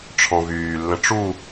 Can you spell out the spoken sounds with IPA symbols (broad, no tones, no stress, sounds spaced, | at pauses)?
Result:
ʈ͡ʂʰ ɔ̃ v yː lː ə̃ ʈ͡ʂ u